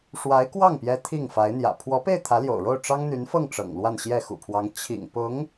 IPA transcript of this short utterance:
ʂwa˧˥ɪ̯ kwɑ˥˩ŋpjɛ˧˥ t̪ʰi˥˩ŋ fa˧˥ɪ̯n̪jä̰˨˩ pʰwɔ˧˥pe˥˩ɪ̯ t̪ʰä˧˥ljo̰˨˩ʊ̯ ɻo˥˩ʊ̯ ʈ͡ʂɑ˥ŋn̪y˧˥nfɤ˥˩ŋ ʈ͡ʂɤ̰˨˩ŋlwa˥˧nɕjɛ˥˩ xṵ˨˩pʰwɑ˧˥ŋ t͡ɕʰḭ˨˩ŋpʊ˧˥ŋ

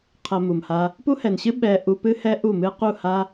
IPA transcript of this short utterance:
qʰɐ˧mu˨mha˧ | pu˦hɛ˨nɕɨ˦ ɓɛ˧ ʔu˧pɨ˦hɛ˦ ʔu˦˨mɨ˦ qu˦˨ha˦

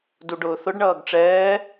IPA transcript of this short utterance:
duɖʊːθʊɖɳʌːɡ ʈ͡ʂɛː

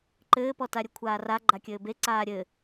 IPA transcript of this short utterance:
ǃɘːpɔtaɾʲɘ kʷʰaːra ɡ͡ǃakʲɘːbe ǀaːɾʲɘ

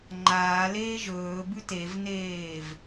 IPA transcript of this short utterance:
ŋ͡ǃaːleː ʒɵːbʉ tevneːv

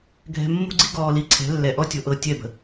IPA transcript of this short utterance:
ɡʱɛ̤˨ mːṳ˦ɡ͡ǀi˦ɡɔː˨ li˨ ǀʰɛ̤˨˦ lːɛ˨ʔɔ˦ tʲo˨ʔɤ˦˨ tʲɛ˦˨bə̤˨

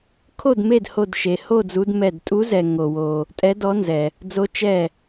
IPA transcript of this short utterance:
kʰo˥˨d me˥˨dho˧˩dʃe˩ ho˥˨d͡zu˨˦dmɛ˧˩d tʼu˨˦zɛ˩ ŋo˩wo˩ | tʼɛ˨˦dɔ˨˦nzɛ˩ | d͡zo˨˦ t͡ʃɛ˧˩

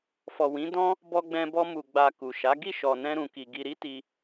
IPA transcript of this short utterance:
fɔ˨wĩ˨˦dɔ̃˦ | bɔ˧ɡ͡bɛ̃˧bɔ˧ mu˨ɡ͡ba˨ ku˨ʃa˨˦ ɡi˦˨ʃɔ˨nɛ̃˧ ɾũ˨ki˨ ɡi˨ɾi˨˦ ti˧

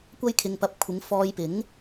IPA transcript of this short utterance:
kʷɐ˥jkʰɪ˧ŋpɐ˧p̚ kʷʰɪ˨˧ŋfɔː˧jpɪ˨˥ŋ

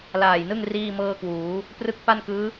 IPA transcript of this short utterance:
laː˨˩jnɯ˥˩ŋ riː˥˩mɤː˥˩kwuː˩˦ | prɯ˦˥k̚pa˥˩nkɯː˦˥

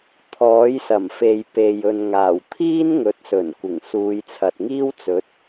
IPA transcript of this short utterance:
t̪ʰɔː˨˥jsɐ˨˩mfe˨j pe˨j ɵ˨nŋaː˨˩w t̪ʰiː˥nŋɵ˨˥t̚sɵ˨˩nkʷɪ˨˩ŋ suː˨˧jt͡sʰɐ˨t̚ŋiː˥wt͡sɵ˨˥t̚

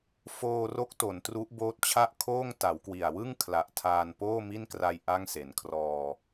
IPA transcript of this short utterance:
foː˧ro˦˥k̚ to˩˦n tru˦˥ʔboː˦˥t̚t͡ɕʰa˥˩ʔ kʰoː˥˩ŋ ta˩˦wkwi˨˩a̯ wɯ˥˩ŋ kʰla˨˩ʔtʰaː˧n poː˥˩mi˥˩nkra˧j ʔa˥˩ŋse˩˦nkʰrɔː˧

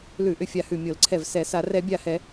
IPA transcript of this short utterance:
lʉ˧˩˧ʔʏ˧˩fʲa˧˩hʉ˧˩ mʲo˧˩˧lǀʰɛ˧˩vsɛ˧˩˧sa˧˩˧ rɛ˧˩˧bʲa˧˩hɛ˧˩˧

